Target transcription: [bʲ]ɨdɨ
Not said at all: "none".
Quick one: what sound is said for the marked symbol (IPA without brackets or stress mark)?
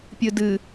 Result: pʲ